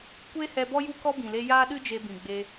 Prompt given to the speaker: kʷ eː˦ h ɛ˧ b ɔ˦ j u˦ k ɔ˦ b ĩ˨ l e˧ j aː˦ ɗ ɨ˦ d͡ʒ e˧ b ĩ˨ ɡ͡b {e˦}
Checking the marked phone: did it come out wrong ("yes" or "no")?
yes